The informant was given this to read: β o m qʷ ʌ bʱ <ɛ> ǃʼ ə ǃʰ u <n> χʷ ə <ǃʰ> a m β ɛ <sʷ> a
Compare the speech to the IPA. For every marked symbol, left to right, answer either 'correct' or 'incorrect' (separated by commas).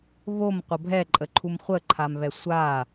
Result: correct, incorrect, correct, correct